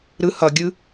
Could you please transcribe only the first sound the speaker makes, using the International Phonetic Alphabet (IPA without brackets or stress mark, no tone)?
ɾ